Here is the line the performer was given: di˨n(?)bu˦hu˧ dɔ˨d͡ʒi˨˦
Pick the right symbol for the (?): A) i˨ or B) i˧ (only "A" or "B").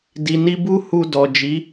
B